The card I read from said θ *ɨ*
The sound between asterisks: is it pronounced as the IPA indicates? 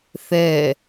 no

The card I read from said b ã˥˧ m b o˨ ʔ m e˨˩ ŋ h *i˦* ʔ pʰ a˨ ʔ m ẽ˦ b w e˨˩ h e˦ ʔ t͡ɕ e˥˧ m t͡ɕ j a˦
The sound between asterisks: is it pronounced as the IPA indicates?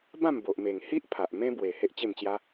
yes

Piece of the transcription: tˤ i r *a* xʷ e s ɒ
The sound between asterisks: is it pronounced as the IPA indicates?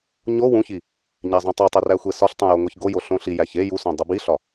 no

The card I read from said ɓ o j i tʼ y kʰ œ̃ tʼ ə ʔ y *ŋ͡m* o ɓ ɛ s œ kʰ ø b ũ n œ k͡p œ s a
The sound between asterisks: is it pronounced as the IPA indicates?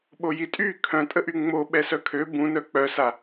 yes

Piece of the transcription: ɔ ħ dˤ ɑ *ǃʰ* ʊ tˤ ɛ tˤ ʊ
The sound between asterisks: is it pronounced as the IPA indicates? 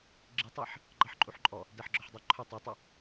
yes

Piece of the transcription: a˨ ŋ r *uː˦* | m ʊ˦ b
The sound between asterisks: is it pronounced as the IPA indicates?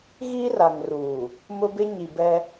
no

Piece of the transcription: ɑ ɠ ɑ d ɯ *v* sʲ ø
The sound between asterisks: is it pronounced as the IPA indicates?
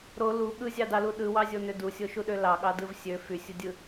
yes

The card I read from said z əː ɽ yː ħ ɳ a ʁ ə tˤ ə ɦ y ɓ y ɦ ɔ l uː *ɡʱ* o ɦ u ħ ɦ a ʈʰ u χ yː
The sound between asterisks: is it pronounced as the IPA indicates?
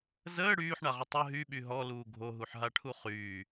yes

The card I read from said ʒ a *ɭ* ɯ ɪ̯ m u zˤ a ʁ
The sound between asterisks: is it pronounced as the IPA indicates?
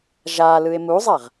no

